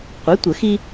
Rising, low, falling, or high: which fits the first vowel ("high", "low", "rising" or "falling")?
rising